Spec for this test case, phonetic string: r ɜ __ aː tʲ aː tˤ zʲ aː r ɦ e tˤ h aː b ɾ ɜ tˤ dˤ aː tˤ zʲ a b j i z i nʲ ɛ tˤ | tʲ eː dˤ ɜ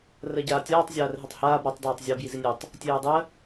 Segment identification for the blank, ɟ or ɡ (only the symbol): ɟ